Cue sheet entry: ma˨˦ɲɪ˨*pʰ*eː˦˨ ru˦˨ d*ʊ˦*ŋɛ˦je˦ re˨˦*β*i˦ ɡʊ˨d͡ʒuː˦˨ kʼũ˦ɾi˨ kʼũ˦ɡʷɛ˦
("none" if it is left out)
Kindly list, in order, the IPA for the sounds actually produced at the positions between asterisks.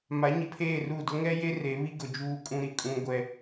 pʰ, ʊ˦, β

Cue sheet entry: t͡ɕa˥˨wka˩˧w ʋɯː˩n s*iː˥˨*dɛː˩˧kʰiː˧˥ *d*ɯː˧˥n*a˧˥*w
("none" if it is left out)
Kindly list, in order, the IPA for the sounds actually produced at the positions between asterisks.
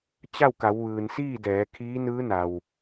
iː˥˨, n, a˩

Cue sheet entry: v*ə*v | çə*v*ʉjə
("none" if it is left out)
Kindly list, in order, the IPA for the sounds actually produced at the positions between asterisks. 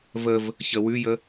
ə, w

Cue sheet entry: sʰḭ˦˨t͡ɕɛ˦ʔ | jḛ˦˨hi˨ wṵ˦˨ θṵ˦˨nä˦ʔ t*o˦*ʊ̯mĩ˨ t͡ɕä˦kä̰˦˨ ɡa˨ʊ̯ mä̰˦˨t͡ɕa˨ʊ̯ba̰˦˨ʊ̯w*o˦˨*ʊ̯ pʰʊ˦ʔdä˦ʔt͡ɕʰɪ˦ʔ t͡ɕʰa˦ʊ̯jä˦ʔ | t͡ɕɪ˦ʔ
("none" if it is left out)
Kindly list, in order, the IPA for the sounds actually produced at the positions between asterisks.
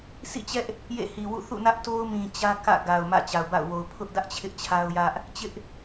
o˦, o˨

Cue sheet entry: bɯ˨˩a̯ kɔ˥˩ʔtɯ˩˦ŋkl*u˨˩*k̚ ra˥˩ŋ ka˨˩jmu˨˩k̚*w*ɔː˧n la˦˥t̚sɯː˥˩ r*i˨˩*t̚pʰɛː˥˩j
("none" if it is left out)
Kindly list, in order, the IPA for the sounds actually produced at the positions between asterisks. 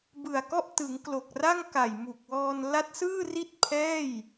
o˨˩, w, i˥˩

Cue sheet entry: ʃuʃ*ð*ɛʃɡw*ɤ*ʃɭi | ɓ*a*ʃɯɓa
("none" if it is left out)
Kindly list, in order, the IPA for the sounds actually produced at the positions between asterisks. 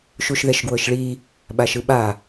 ð, ɤ, a

